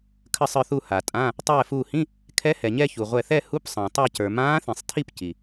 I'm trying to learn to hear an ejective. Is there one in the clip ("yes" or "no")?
yes